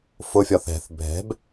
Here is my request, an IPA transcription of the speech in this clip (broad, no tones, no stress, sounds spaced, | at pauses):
f ʊ fʲ ɒ θ ɛ̤ θ bʱ ɛ̤ b